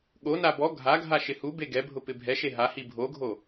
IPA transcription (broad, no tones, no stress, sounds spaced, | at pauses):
ɠ o n a b ɔ ɡʱ a ɡʱ a ʃ ɪ h u b e ɡ ɛ bʱ ʊ p ɪ bʱ ɛ ʃ e ɦ a h i bʱ o ɡʱ o